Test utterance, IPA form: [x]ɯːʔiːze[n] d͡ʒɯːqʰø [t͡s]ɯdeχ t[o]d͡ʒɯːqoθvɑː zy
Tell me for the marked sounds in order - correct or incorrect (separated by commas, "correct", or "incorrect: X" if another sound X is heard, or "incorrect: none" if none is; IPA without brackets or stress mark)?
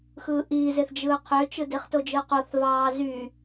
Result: correct, incorrect: θ, incorrect: t͡ʃ, correct